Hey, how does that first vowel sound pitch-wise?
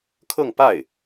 falling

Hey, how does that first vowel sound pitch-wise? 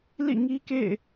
falling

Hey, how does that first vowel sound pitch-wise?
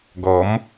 rising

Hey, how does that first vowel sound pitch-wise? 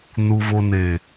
low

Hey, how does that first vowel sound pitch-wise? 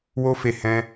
high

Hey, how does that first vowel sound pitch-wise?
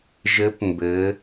rising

